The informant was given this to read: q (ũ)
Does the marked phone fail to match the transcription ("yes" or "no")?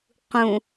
no